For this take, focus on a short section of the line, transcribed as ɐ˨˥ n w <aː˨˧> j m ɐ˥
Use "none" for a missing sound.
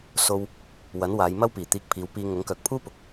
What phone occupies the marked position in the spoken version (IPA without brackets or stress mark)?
aː˨˧